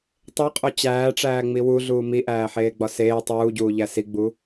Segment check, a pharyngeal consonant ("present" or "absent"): present